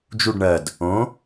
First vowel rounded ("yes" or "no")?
yes